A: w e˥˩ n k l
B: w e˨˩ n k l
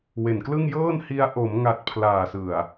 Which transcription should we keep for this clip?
B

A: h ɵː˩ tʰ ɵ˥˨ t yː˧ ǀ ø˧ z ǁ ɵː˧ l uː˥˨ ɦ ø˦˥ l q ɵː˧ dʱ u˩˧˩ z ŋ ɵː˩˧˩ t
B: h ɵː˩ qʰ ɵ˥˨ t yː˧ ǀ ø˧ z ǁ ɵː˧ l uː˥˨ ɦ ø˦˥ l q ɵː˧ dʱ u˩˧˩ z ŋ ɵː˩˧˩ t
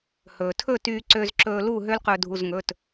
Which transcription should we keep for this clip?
A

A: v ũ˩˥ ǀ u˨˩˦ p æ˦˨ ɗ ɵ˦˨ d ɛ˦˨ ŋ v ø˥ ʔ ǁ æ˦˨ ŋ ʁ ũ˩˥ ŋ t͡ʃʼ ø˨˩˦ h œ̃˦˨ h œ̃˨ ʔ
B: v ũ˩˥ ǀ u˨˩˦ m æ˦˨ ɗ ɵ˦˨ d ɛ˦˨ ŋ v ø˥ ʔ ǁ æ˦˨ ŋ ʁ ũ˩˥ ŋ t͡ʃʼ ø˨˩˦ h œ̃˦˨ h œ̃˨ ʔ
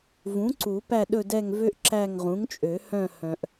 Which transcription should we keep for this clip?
A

